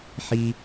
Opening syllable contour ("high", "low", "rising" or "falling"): high